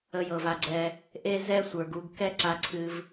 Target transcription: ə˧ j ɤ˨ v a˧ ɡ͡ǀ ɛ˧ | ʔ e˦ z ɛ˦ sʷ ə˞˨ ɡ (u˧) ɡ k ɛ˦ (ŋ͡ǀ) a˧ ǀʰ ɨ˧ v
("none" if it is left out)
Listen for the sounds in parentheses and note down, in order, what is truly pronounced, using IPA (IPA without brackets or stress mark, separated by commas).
u˧, ǀ